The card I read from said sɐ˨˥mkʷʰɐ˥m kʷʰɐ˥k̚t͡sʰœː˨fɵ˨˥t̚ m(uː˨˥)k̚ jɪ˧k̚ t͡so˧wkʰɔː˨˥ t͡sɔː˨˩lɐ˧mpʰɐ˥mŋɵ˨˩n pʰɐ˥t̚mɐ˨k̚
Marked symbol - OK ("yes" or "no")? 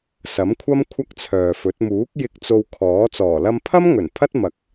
yes